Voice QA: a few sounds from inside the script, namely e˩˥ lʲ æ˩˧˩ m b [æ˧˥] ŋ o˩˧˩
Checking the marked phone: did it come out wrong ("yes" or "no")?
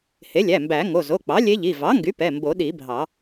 yes